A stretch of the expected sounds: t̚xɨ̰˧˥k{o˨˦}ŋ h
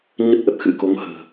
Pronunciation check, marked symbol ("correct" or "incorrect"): correct